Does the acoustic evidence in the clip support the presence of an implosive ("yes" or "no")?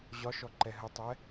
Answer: no